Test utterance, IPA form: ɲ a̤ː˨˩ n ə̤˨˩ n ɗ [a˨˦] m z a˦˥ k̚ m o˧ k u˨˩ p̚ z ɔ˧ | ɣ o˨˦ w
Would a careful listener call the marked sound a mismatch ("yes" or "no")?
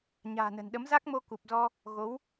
yes